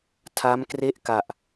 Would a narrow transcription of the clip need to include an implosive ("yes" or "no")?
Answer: no